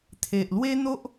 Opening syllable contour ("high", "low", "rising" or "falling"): low